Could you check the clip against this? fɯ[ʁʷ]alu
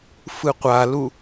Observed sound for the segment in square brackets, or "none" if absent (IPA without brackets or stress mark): qʷ